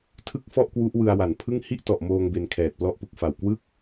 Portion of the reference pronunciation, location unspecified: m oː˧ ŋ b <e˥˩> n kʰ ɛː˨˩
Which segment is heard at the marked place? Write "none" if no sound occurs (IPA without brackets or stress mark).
e˧